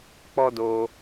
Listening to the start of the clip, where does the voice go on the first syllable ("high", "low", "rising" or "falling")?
high